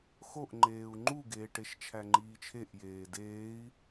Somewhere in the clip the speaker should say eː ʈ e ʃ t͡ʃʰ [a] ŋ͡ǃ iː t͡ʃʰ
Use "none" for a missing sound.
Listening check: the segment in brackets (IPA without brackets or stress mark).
æ